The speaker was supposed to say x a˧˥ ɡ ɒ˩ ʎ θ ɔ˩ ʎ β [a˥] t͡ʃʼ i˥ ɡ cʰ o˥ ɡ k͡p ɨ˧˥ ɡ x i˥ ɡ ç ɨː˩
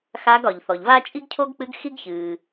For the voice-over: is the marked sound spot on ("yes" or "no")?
yes